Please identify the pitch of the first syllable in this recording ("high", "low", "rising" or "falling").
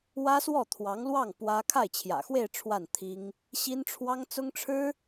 high